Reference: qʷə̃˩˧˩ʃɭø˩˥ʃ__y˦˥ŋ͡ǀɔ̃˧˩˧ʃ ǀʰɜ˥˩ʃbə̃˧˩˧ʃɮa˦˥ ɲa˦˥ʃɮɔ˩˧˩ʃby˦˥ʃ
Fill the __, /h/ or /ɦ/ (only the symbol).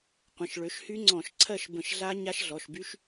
h